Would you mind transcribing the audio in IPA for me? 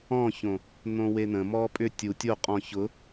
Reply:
ɔ̃ ç õ | n̪ õ w e n̪ ə̃ m ɔ pʼ ʏ tʲ u tʲ o qʼ ɔ̃ ç ʊ

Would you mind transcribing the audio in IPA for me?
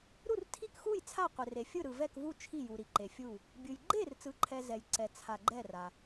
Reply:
ɾ u˥˨ r tʰ i˥˨ k x u˥˨ j t͡sʰ a˥˨ qʷ e˨ r e˨ fʲ ɯ˥˨ ɾ ɯ˨ v ɛ˥˨ k v u˥˨ t͡ʃʰ i˥˨ j u˨ ɾ i˨ ǃ e˨ fʲ u˥˨ | bʲ ɯ˨ j ɡ͡ǃ e˥˨ r t͡s ɯ˨ ǃʰ ɛ˨ z ɛ˨ j ǀ ɛ˨ t͡sʰ a˨ ɡ͡ǃ ɛ˥˨ r a˨

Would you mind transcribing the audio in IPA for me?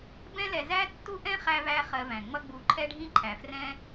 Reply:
b ɛ̃˥ l ɛ˧ z æ˥ tː u˥ ʔ ɛ̃˥ χ æ˥ v æ˥ χ ɜ˧ v æ̃˩ ŋ͡m ʌ˥ ɡ͡b u˧ ǃʰ ɛ˥ ɖʱ ĩ˥ ǃʰ æ˩ f r ɛ̃˥

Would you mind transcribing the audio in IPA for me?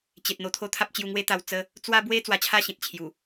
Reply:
t͡ɕ e˨ t̚ n̪ o˧ t̪ʰ o˦ t̪ʰ a˦ p̚ t͡ɕ j u˧ ŋ w e˦ t̪ a˧ w t͡s ə˦ | t͡s w a˦ b w e˦ t͡s w a˧ t͡ɕʰ a˥˧ ɕ ĩ˨ t̚ t͡ɕʰ j u˨˩

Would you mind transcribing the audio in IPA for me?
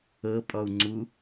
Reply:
ɤ pʼ ɔ u̯ ŋ͡ǀ u

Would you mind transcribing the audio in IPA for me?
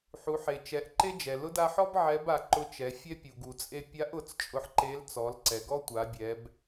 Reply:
ħ u˩˧ ħ e˩ t͡ʃ ɛ˩˧ ʔ ǃ e˥ d͡ʒ ɛ˩ l ʊ˧˥ d a˧ ħ ɔ˥ b ʕ ɛ˧˥ b a˩˧ ǃ ʊ˧˥ t͡ʃ ɛ˩˧ fʲ ɛ˥ pʲ u˩ ɡ u˩ t͡sʼ e˧ pʲ a˧˥ ʔ ʊ˩˧ t͡s t͡ʃʼ ʊ˧ ħ ǃ e˧˥ l t͡s ɔ˩˧ l ǀ ɛ˩ ɡ ɔ˥ tʷ a˩˧ bʲ ɛ˩˧ b

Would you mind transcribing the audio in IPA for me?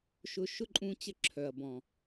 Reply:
ʃ ʊ˧ ʃ ʊ˦ ǃʼ ũ˧ t͡ɕ ə˧ ǁʰ œ˨ ɐ̯ b ɔ̃˨

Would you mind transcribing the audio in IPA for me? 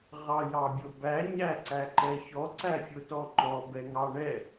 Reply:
ʁ ɑ j ɑ bʲ o b æ ɲ æ ǀ æ ǃ ɛ ç ɔ ǀ æ fʲ o t ɔ ŋ͡ǃ ɔ b ɛ ŋ ɑ ɳ ɛ

